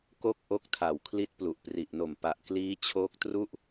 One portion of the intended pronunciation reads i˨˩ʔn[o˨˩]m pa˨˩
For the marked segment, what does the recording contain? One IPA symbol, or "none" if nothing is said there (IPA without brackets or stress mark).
o˨˩